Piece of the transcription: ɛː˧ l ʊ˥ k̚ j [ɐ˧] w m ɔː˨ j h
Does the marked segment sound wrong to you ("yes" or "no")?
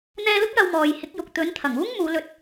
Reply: no